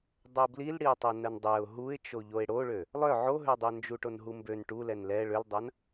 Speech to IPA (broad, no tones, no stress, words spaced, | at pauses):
dˤɛʊ̯blil ɽiʊ̯tˤɛnɜndˤɛʊ̯ ɦuɪ̯t͡ʃoʎoɪ̯ ɽoɭø | lˠœ ʕoɦødˤœ nd͡ʒuʈonɦumbøn ʈulɛn lɛ ɭøldˤɐn